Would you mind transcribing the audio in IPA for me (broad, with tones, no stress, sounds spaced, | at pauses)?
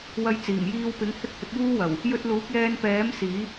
w ɐ˧ j t͡s iː˨˩ m j iː˧ w p ɪ˨˥ ŋ h ɪ˥ k̚ h ɪ˨˥ k̚ j uː˥ w ɐ˨˩ w | j ɵ˧ t̚ l uː˨˥ k̚ j ɛː˧ n p ɛː˨˥ m s iː˨˥